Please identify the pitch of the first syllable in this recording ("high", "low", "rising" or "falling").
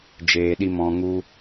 low